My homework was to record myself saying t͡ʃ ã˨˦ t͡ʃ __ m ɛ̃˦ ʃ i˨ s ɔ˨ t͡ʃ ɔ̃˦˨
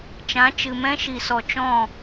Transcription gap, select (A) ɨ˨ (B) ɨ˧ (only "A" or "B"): A